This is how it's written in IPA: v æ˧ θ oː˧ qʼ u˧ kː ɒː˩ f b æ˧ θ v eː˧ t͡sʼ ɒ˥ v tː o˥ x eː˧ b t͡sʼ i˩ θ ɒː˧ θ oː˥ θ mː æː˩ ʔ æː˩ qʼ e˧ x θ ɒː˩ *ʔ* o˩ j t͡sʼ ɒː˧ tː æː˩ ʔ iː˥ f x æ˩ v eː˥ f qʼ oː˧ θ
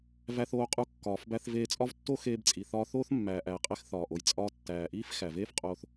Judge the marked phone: correct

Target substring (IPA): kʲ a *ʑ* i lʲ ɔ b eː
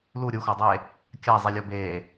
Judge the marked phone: incorrect: zˤ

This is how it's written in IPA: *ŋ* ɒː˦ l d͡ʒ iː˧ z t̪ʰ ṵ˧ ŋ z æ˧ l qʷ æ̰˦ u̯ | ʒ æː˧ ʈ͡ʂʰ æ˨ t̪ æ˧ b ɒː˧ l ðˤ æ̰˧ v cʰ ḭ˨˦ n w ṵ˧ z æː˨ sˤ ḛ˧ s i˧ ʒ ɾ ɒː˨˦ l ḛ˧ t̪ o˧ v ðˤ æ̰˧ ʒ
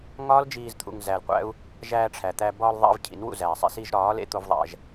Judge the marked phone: correct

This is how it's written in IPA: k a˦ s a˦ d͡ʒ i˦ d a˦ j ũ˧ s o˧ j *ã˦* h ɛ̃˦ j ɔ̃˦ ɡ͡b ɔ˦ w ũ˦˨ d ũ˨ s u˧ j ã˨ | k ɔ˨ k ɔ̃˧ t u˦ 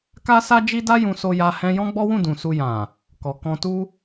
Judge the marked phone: incorrect: a˦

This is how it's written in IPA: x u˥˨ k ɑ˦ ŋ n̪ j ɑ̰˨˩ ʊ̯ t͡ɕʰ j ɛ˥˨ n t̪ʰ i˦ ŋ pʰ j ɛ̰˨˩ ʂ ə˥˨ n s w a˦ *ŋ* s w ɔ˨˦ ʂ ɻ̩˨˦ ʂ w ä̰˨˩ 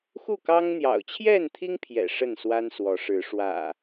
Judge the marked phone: incorrect: n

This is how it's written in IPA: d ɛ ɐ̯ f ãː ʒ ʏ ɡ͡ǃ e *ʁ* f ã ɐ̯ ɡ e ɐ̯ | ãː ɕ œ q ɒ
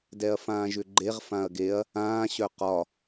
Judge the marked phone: correct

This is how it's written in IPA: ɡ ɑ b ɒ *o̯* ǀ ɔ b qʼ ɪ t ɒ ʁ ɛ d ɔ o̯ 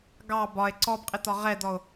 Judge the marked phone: incorrect: e̯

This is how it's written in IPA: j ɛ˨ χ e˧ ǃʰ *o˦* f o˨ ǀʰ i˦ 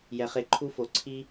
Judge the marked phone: incorrect: u˦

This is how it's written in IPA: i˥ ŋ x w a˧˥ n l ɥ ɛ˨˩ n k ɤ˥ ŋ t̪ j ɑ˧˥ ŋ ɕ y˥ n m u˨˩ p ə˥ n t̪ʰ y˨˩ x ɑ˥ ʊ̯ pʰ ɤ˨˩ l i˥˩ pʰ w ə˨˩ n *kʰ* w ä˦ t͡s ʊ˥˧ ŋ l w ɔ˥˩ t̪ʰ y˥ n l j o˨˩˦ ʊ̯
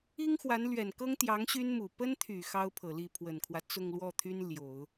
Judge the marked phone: correct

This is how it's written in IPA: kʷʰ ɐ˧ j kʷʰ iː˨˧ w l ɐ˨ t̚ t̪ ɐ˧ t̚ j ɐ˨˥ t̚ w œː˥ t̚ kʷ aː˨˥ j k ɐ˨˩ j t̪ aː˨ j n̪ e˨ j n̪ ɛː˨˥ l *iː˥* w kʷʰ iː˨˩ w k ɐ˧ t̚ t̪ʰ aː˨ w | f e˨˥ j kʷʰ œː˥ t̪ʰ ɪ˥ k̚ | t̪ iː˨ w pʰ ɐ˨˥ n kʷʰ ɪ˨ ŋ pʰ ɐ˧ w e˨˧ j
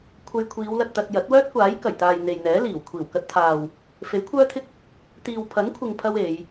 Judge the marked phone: incorrect: iː˨˩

